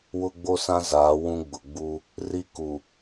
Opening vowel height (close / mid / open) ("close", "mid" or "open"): close